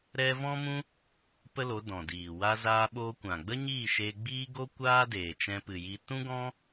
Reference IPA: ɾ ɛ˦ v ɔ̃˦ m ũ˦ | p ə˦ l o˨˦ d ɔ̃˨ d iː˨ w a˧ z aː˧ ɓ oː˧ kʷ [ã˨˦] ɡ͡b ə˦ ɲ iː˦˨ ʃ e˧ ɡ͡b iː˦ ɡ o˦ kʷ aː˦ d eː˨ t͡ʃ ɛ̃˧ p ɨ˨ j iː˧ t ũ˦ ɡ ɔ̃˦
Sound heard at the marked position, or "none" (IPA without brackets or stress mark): ã˨